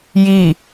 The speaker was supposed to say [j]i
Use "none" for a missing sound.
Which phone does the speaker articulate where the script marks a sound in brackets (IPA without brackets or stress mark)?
j